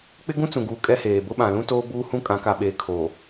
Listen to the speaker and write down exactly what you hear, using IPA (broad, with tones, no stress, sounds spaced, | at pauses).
k͡p ɪ˦ ɡ ũ˦ t͡s ũ˨ ɡ uː˨ kʼ ɛ˦ h eː˨ b ʊ˦ ɓ ã˨ l ũ˦ t oː˦ b uː˦ h ũ˦ kʼ ã˨˦ k a˨ ɓ eː˨ kʰ oː˨